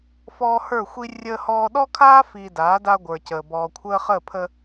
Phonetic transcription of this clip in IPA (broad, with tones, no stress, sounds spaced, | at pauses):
f ɔː˦ h ə˞˦˨ xʷ i˦ rʲ əː˦ h ɔː˦ ɗ ɔ˦ kʰ aː˦ f iː˨ d aː˨˦ d a˦ ɡʷ ə˞˨ c əː˨ b ɔː˨ kʷʰ əː˦ χ ə˦˨ pʰ ə˦